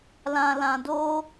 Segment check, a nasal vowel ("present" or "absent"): present